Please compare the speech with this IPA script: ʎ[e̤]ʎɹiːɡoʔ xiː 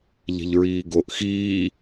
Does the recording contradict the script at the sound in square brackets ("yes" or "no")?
no